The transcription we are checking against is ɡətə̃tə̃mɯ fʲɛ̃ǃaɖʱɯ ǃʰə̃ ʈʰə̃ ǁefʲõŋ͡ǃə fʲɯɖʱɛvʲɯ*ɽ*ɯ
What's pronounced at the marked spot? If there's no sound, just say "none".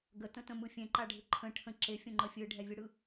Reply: ɽ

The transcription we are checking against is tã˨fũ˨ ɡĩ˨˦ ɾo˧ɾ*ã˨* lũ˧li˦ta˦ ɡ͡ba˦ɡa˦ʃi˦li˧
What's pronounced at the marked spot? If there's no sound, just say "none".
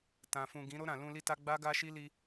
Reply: ã˨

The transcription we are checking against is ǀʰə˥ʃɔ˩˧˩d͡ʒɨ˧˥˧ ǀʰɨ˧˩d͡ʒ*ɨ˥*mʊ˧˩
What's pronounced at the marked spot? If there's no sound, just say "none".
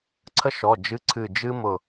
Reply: ɨ˥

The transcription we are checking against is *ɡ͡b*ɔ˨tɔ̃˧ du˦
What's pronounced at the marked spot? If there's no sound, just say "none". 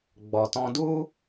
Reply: ɡ͡b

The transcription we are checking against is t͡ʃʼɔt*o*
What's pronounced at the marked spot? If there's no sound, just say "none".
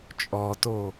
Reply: o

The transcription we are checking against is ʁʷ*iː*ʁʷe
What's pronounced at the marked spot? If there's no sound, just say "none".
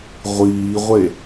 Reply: iː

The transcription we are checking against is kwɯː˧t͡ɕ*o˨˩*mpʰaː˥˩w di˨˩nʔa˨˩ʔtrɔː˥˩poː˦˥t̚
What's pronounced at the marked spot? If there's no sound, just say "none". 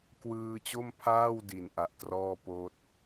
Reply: o˥˩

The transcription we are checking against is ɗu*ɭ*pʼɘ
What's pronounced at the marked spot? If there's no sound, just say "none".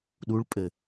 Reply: ɭ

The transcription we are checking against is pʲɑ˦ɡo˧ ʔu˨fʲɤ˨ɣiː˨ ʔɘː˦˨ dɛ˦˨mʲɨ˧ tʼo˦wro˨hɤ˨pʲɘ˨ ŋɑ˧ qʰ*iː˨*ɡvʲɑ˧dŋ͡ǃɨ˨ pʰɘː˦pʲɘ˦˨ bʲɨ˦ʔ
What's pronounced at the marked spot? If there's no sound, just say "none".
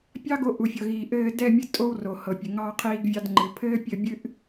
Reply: iː˧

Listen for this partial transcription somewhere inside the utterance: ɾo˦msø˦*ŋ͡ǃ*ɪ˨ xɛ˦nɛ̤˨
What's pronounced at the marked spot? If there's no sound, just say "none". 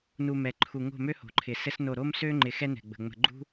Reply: ŋ͡ǃ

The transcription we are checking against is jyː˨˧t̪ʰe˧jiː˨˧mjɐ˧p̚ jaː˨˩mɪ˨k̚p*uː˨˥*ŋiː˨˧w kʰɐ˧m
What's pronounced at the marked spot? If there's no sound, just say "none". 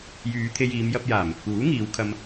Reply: uː˨˥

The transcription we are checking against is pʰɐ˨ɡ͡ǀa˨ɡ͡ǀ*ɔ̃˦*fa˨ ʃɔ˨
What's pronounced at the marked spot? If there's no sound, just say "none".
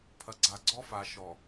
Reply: ɔ˦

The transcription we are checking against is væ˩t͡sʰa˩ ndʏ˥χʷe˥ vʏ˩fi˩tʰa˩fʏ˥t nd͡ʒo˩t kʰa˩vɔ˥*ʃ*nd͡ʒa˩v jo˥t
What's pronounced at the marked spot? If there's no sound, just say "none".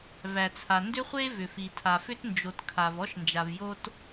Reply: ʃ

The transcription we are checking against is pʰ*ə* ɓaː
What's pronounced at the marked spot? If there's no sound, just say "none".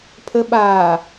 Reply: ə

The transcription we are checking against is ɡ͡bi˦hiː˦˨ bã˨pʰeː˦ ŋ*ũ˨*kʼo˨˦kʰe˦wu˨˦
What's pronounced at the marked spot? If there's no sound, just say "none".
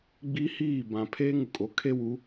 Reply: u˨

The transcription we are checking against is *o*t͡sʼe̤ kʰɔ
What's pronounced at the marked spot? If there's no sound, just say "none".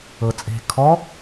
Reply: ɤ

